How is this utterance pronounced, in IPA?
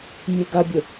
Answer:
mʲeɡabʲʊ

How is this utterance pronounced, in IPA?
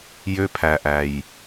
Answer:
jø˧pʰæ˨ʔæ˨j

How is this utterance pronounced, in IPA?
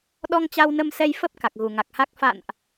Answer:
ɗɔ˧ŋt͡ɕa˧wnə˧msɛ˧j fə˦˥p̚ ka˨˩k̚ɣu˨˩ŋa˨˩k̚ha˦˥k̚ fa̰˧˨nʔ

